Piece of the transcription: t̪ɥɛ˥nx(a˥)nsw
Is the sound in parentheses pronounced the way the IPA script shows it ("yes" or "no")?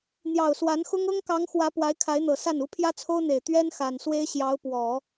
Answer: no